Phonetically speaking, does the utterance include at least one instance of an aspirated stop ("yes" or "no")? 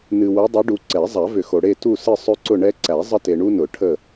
yes